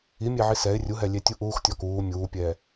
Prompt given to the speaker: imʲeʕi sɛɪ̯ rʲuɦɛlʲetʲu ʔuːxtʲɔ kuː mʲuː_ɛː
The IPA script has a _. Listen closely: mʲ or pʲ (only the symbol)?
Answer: pʲ